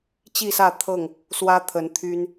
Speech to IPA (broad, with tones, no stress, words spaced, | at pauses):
t͡ɕi˥˨sä˥˨ t̪ʰɤ˥˨ŋ | swä˦t̪ʰə˨˦n t̪ʰy˦n